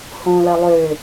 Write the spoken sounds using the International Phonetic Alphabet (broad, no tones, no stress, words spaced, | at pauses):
hõ lɐlˠø